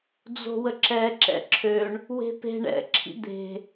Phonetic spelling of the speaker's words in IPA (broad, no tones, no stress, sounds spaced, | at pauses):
d͡z o̤ w ə ǁ ɛ ǁ ɛ̰ ǁʰ ø ɳ | w e̤ p e̤ ɳ ɛ̰ ǁʰ ḭ d̪ e̤